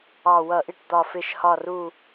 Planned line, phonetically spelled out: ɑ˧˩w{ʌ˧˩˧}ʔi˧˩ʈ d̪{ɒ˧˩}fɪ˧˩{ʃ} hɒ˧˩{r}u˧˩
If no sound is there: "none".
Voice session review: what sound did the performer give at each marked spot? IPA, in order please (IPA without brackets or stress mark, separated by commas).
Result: ʌ˧˩˧, ɒ˧˩, ʃ, r